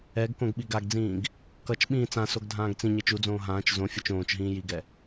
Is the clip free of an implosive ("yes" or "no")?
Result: no